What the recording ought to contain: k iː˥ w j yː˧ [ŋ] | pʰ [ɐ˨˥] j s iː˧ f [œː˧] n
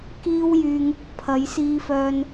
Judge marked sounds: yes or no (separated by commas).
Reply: yes, yes, yes